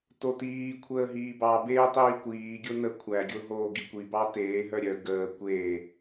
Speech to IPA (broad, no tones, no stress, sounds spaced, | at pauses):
t o t iː kʷʰ əː ɦ iː b ɑ b eː tˤ iː kʷ iː ɡʲ o n ə kʷʰ æ ɡʲ o ɦ oː ɡ i kʷ i b ɑ t eː ɦ œ ɾʲ œ ɡ əː kʷ eː